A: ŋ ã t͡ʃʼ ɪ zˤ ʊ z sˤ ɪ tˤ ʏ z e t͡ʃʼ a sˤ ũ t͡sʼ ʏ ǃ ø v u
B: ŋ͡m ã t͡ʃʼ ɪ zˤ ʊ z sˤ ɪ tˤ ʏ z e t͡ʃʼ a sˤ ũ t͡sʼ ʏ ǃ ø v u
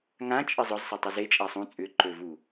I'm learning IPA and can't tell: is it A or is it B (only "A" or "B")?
A